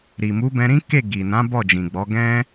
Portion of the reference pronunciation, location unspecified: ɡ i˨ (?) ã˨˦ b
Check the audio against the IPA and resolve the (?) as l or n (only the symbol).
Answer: n